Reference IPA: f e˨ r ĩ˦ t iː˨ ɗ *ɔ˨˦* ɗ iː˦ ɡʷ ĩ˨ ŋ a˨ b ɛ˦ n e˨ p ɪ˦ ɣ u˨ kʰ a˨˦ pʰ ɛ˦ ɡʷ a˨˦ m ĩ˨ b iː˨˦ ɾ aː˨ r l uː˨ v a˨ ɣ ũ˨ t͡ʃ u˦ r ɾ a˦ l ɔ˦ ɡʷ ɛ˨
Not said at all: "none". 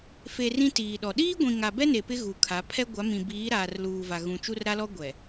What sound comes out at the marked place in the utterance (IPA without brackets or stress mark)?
ɔ˨